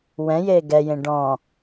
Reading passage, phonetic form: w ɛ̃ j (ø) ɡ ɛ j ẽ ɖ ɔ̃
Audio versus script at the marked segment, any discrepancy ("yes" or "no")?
yes